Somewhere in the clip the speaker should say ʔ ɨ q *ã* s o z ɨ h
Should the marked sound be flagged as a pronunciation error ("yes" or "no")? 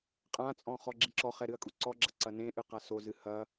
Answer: yes